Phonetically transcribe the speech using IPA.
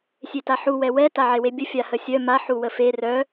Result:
sʲ e t a ħ u w ɛ w ɛ t a ʕ e w e bʲ ə fʲ a h ə sʲ œ m a ħ u w ə f e r œ

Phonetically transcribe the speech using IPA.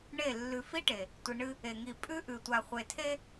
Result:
ɳ e˦˨ lː ʉ˨ f i˦ ʈ e˨ | tʷ i˨ ɳ ɨ˦ | e˨ ŋ i˨ pʼ ʉ˦ ʔ ʉ˨ tʷ a˨ χʷ e˨ tʰ e˦

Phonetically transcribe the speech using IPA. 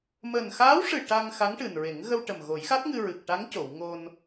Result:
m əː˨˩ n x aː˧˥ w ʂ ɨ˨˩ ʈ a˧ ŋ x a˧˥ ŋ ʈ ɨ˨˩ n ɹ e˨˩˦ ŋ ɣ ə˧ w ʈ ə˨˩ m ɣ o˨˩˦ j x a˦˥ t̚ ŋ ɨ˧ ɹ ɨ˨˩ k̚ ʈ a˧˥ ŋ c o˨˩˨ w ŋ o˧ n

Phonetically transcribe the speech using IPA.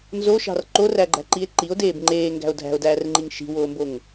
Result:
n z o ʃ ɑ̤ r ǃ o r æ ɡ͡ǃ æ̤ ǃ i e̯ ǃ i o̯ d eː b ŋ͡ǃ eː ŋ ɡ æ̤ o̯ dʱ æ̤ o̯ d æː r ŋ͡ǃ i ŋ ʃ i̤ w oː m b o ŋ

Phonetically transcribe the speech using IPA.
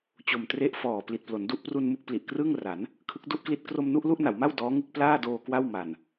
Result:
t͡ɕ o˨˩ m t r e˥˩ ʔ f ɔː˨˩ p l i˨˩ t̚ p l o˩˦ n d u˥˩ ʔ p r u˧ n m u˥˩ k̚ p l i˨˩ ʔ k r ɯː˥˩ ŋ r a˩˦ n | kʰ ɯ˦˥ k̚ d u˥˩ ʔ k l i˥˩ t̚ k r o˧ m n u˥˩ ʔ l u˥˩ ʔ n a˩˦ w m a˥˩ w d ɔː˦˥ ŋ ɯ˦˥ k̚ p l aː˥˩ d oː˧ k w a˥˩ w m a˨˩ n

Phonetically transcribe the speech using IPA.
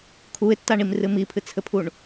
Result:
kʰ u ɪ̯ tː a ɳ i m r ɨ m i pʰ ɨ t͡sʰ ɘ pʰ u ɳ

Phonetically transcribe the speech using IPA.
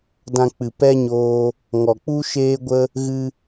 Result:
d ã˧ k͡p ɨ˨ p ɛ˦ ɲ oː˧ | ŋ ɔ˨ k͡p u˦ ʃ eː˦ ɡʷ ə˦ | ɣ ɨ˧

